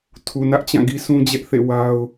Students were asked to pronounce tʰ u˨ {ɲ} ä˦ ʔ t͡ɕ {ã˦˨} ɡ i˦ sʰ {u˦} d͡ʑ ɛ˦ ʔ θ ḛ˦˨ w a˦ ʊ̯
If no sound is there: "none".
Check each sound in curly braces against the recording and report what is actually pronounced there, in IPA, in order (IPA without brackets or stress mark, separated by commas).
n, ã˦˨, ũ˦